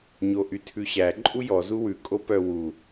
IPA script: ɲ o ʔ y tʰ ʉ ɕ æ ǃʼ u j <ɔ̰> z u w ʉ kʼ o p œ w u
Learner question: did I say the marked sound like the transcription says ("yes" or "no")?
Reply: no